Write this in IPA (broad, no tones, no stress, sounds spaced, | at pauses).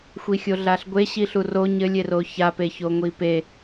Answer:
xʷ i xʲ o ɮ a ɬ ɡʷ e ɕ i ɬ u r o ɲ ɘ lʲ e r o ç a p e ç o ŋʷ i p e